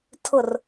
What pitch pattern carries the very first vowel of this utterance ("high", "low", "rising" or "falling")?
falling